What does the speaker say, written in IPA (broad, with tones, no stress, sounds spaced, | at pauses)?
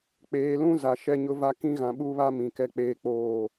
k͡p eː˨ l ũ˦ z a˨ ʃ ɛ˦ ɲ ʊ˦ v a˦ k ĩ˦ ɣ ã˨ ɓ u˦ β a˦ m ĩ˨ k ɛ˦ k͡p eː˦ k͡p oː˦˨